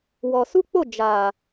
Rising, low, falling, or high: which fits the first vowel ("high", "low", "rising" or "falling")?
low